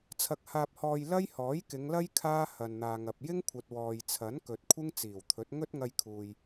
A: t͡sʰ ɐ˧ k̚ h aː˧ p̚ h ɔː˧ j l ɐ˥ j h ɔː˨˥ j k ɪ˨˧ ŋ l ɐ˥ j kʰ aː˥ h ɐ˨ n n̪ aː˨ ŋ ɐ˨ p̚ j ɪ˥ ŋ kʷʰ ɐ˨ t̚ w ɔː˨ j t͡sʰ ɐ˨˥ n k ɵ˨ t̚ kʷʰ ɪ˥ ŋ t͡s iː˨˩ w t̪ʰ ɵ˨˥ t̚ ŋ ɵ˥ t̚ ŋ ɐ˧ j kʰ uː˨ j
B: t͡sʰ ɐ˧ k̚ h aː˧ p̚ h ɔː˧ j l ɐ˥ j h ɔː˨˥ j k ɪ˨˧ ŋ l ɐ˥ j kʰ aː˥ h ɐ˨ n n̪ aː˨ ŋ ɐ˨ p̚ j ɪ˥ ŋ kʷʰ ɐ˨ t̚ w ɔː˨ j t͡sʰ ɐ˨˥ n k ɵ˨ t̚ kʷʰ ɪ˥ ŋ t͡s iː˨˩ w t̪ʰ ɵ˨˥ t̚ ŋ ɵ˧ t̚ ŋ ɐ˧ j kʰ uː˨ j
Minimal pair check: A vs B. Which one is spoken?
A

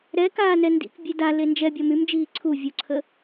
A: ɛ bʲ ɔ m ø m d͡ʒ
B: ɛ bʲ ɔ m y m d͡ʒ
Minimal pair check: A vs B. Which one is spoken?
B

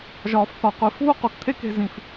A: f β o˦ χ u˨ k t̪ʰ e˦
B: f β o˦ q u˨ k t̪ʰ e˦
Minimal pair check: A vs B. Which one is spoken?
B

